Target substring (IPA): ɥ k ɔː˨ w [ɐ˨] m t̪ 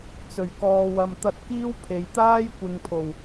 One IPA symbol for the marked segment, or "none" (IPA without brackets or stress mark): ɐ˨